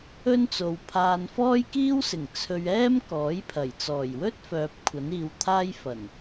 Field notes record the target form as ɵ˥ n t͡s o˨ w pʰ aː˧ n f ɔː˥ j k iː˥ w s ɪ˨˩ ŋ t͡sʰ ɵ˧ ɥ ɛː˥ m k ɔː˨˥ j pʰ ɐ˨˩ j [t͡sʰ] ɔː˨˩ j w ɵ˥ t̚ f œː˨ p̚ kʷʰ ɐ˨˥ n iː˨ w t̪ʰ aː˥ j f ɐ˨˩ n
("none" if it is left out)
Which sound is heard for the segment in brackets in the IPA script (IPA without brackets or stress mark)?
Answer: t͡s